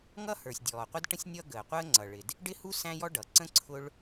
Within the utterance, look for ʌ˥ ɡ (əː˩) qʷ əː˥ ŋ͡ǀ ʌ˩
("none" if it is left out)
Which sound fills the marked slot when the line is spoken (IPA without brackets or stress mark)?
əː˩